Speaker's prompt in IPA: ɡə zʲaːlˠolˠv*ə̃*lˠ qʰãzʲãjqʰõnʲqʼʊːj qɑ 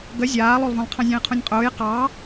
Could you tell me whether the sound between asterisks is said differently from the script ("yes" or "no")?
no